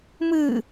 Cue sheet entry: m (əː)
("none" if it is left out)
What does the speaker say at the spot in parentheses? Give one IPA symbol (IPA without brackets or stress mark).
ɨː